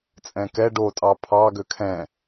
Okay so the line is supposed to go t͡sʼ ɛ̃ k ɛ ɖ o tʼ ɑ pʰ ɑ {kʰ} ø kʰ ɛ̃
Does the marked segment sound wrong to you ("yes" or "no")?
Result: yes